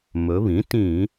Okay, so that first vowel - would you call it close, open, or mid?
mid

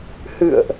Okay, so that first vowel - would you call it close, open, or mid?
close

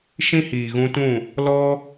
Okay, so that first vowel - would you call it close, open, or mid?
close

